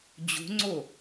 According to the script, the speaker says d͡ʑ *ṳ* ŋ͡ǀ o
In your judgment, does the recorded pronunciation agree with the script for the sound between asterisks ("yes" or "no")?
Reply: yes